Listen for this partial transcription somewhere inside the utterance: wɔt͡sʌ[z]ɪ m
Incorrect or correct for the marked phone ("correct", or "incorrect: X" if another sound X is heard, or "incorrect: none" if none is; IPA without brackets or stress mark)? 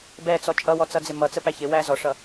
incorrect: d͡z